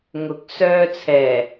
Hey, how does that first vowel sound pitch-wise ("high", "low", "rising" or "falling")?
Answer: rising